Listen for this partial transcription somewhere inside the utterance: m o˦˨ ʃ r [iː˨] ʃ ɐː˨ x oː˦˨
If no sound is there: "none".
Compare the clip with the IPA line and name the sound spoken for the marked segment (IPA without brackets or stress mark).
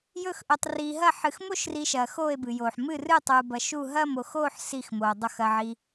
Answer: i˨